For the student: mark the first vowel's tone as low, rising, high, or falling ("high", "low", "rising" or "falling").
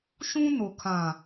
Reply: high